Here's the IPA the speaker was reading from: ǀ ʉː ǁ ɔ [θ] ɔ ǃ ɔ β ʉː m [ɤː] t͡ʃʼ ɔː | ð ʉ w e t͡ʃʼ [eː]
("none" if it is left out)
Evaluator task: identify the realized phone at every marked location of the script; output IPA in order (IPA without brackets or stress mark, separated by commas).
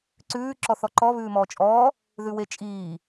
θ, ɔː, iː